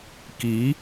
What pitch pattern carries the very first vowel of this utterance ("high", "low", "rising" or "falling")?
rising